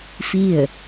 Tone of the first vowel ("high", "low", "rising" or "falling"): falling